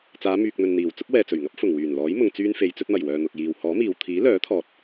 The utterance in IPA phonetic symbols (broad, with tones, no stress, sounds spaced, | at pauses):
t͡s aː˨˧ m yː˨ k̚ n̪ ɵ˨ n n̪ iː˨˩ w t͡s ʊ˥ k̚ w ɛː˨ t͡s ɵ˨˩ ɥ ŋ ɐ˥ p̚ f ʊ˨˩ ŋ w yː˨˩ n l ɔː˨˥ j m ʊ˧ ŋ t͡s yː˥ n f e˧ j t͡s ɵ˧ t̚ m ɐ˨˩ j w œː˨ n̪ ʊ˨ k̚ j iː˨ w h ɔː˨˥ m iː˨ w t̪ʰ iː˨˥ l œː˨˥ t̪ʰ ɔː˨ t̚